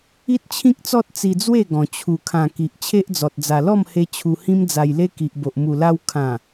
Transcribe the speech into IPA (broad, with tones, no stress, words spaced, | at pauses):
i˦t̚t͡ɕʰĩ˦k̚t͡sɔ˦t̚ t͡si˧d͡zwe˥˧ɡɔ̃˨˩ t͡ɕʰu˨˩kʰã˨˩ ki˨ʔt͡ɕʰe˦ʔd͡zɔ˨t̚ d͡za˨˩lɔ˥˧mhe˧ t͡ɕʰu˧hĩ˦md͡za˧jle˦ ki˨ʔ bo˨ʔ mu˨˩la˧w kʰã˨˩